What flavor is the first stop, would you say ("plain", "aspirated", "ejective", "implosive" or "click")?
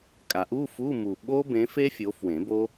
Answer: ejective